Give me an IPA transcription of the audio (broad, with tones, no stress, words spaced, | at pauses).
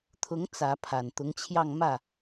t̪ʰʊ˧˥ŋ t͡sä˧˥ pʰa˨˩nt̪ʊ˧˥ŋt͡ɕʰjɑ˥˧ŋ mä˥˩